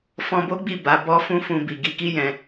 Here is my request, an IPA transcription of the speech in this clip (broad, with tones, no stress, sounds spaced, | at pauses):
f ɔ̃˧ b o˦ ɡ͡b i˦˨ b a˨˦ b ɔ˦ f ũ˦ f ũ˧ b i˨ ɡ i˧ k i˦ j ɛ̃˧